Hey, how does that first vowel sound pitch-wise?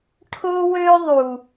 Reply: high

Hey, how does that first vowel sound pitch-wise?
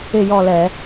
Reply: falling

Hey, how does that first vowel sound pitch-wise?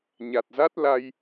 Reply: low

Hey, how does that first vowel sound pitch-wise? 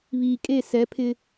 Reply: low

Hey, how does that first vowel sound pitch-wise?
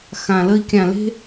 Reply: low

